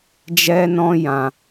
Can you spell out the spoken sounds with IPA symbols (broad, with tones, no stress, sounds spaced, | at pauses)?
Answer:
d͡ʒ ɛ˦ n ɔ̃˦ j ã˧